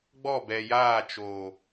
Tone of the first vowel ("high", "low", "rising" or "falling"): falling